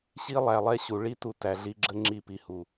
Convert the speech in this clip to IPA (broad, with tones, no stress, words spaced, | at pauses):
ɕi˦lˠæ˨lˠɛ˦ɕu˨ ɭi˦tu˧ tæ˨ɮi˧ɡ͡ǁə˦ ŋ͡ǁi˧ pi˨hu˨